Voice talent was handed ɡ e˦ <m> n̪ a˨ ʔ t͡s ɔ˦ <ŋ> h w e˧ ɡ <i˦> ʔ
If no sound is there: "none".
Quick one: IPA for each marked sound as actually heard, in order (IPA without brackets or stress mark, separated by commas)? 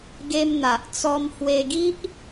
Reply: m, m, i˦